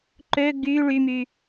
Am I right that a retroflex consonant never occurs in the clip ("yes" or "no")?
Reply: no